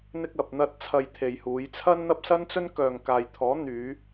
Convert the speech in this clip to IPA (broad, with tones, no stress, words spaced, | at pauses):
n̪ɪ˧k̚ɐ˨p̚n̪ɐ˧t̚ t͡sʰɐ˧jt̪ʰe˨jhuː˨˧jt͡sʰɐ˥n n̪ɐ˥p̚sɐ˥nt͡sɵ˥n kœː˨ŋkaː˨jt̪ʰɔː˨˥n̪yː˨˧